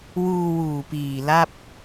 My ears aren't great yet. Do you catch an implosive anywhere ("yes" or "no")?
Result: no